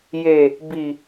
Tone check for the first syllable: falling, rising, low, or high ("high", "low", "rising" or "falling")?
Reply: low